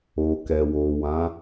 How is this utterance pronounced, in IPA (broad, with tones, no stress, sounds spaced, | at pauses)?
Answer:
o˨ k ɛ˨ w o˨ w ã˨˦